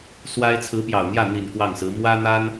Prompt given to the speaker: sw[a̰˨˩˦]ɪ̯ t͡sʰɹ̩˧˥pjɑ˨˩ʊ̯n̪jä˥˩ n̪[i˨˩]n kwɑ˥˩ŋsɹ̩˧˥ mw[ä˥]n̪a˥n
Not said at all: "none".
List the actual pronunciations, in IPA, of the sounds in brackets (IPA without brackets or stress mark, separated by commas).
a˥, i˨˩, ä˥